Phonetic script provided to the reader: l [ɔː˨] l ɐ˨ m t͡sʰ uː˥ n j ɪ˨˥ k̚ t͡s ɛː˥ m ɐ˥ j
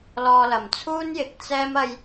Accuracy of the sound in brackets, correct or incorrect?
incorrect